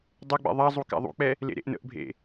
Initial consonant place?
alveolar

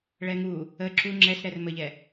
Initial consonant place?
retroflex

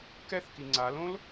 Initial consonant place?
velar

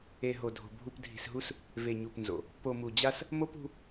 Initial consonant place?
glottal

